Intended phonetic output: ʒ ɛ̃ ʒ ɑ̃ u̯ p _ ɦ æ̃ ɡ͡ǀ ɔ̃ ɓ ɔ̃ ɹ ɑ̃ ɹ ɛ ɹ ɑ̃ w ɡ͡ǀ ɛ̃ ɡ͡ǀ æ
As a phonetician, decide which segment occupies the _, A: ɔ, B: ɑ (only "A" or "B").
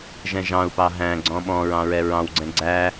B